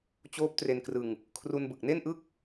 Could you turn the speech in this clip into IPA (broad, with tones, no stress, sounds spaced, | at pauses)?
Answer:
t͡ɕ oː˦˥ p̚ t r e˧ n k r ɯ˧ ŋ | kʰ r u˧ n b ɯ˨˩ k̚ n e˥˩ n ʔ ɯ˥˩ k̚